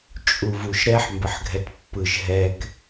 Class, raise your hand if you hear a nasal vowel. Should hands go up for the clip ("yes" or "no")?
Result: no